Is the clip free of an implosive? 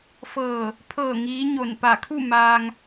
yes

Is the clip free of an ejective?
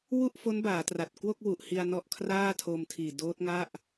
yes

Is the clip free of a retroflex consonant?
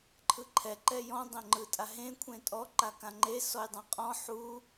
yes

